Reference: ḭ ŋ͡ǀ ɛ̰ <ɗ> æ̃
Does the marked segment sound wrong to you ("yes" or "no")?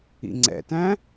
yes